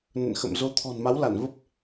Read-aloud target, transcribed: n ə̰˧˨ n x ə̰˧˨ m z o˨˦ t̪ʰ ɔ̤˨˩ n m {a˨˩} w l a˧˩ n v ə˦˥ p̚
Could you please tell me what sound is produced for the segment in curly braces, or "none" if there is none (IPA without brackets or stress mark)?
a˨˦